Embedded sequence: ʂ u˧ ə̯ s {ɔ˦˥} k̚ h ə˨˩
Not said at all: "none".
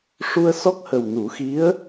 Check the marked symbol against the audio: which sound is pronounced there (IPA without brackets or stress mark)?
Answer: ɔ˦˥